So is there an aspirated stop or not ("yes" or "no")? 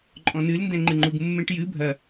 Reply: no